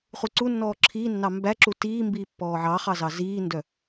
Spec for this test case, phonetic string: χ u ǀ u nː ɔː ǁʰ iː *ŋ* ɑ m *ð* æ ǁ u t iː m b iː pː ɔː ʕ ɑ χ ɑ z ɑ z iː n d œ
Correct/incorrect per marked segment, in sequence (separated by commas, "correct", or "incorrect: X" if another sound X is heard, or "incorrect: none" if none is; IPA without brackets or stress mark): incorrect: nː, incorrect: b